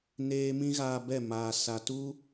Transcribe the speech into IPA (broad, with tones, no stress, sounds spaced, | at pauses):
n eː˦ m ĩ˦ ɣ aː˧ b ɛ˦˨ m aː˨ s a˨ t u˦